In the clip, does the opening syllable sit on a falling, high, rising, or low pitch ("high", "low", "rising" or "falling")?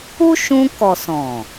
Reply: high